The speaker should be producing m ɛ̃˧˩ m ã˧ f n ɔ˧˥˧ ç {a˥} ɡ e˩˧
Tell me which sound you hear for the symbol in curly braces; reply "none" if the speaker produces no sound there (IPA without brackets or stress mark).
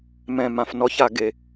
a˧˩˧